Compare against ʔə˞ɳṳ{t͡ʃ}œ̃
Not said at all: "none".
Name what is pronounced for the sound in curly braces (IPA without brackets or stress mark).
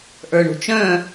t͡ʃ